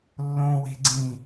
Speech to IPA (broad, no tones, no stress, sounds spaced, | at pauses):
lː õ w e̤ ɡ͡ǀ ĩ